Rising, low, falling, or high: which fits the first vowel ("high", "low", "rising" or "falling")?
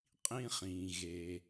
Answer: high